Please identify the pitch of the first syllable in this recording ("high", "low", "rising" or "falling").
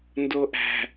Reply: low